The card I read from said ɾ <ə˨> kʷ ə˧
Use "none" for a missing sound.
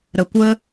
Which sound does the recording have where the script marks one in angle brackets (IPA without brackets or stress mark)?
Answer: ə˨